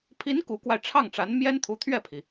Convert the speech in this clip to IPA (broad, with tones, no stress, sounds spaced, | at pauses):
pʰ i˧˥ n k u˧˥ k w a˧ ɪ̯ ʈ͡ʂʰ ɑ˥˩ ŋ ʈ͡ʂ a˧˥ n m j ɛ˥ n t̪ʰ u˧˥ t̪ʰ ɥ ɛ˥˩ pʰ i˩